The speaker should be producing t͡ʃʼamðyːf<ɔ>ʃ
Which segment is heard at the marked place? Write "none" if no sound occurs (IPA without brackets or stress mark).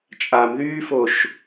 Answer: o